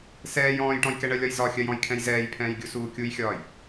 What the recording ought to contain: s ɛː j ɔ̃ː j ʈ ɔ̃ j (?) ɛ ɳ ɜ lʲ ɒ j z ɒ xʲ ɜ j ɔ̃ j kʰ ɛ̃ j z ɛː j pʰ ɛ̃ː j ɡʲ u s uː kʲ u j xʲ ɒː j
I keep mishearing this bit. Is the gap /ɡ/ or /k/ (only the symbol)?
k